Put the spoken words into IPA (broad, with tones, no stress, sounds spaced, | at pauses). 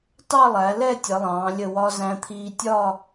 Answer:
t ɑ˥˧ lˠ æ˩˧ l ɛ˥˧ tʲ ʌ˩˧ lˠ ɑ̃ː˩˧ lʲ ə˧˩ w ɒ˧ z æ̃˧ t̪ʰ iː˧ tʲ ɒ˥˧